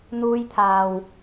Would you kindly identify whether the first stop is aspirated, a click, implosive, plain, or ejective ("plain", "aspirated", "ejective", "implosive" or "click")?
aspirated